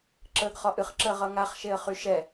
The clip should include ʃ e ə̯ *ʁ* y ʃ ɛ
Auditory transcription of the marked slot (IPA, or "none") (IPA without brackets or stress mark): χ